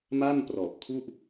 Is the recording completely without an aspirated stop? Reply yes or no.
no